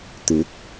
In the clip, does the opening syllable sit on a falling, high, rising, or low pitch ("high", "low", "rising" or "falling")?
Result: rising